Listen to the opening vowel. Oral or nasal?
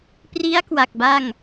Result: oral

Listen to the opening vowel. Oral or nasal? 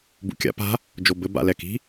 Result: oral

